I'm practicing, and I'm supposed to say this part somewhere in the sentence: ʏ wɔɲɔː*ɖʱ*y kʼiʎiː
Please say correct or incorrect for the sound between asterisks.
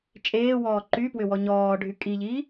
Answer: correct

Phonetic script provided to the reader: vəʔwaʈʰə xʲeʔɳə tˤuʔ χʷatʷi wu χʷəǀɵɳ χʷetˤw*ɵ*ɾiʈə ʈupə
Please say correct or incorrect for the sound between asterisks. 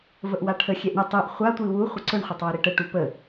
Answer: correct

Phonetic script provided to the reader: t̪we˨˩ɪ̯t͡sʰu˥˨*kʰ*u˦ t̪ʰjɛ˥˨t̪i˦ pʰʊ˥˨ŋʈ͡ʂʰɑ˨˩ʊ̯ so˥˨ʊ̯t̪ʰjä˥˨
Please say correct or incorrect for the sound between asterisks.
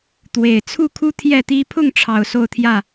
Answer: correct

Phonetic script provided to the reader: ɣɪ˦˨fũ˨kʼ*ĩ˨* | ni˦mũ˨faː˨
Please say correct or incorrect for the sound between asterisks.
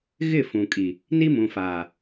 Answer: incorrect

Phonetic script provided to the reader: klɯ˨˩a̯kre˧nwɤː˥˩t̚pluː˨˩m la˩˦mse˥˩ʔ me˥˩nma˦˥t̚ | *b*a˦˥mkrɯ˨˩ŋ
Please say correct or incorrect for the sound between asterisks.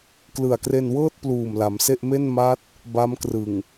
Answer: correct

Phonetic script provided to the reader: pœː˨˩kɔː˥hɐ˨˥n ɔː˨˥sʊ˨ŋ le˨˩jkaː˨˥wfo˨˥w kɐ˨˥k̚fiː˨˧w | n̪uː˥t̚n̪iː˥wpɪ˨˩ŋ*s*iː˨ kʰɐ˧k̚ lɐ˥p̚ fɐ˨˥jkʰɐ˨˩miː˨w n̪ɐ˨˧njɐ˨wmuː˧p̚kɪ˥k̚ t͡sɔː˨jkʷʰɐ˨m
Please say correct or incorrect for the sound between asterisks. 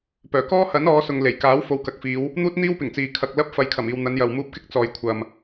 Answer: incorrect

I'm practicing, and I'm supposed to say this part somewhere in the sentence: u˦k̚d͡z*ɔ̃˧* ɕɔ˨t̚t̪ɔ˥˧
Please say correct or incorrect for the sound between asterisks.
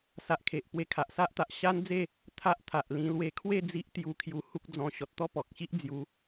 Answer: correct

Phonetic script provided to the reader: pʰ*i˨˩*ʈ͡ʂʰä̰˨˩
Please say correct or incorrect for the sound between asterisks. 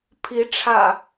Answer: incorrect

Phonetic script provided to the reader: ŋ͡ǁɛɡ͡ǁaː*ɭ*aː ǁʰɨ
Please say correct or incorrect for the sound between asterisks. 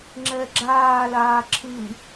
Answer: incorrect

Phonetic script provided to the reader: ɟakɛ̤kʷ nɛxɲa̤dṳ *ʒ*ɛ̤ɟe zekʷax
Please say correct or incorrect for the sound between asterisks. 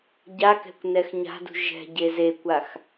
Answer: correct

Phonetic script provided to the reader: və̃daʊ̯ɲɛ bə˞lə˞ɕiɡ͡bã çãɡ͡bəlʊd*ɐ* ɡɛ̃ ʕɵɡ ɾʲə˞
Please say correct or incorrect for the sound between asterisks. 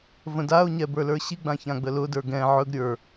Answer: incorrect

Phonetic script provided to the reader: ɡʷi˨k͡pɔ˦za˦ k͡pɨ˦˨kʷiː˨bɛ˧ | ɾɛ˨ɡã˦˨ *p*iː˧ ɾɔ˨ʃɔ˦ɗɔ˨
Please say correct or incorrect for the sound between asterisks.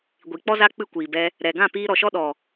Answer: correct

